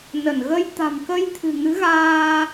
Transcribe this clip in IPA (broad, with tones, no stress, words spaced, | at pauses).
nə˧˩nɣə˧j t̪a̤˨˩mkə˧jt̪ʰɨ̤˨˩ ŋɨ˨˦ɣaː˧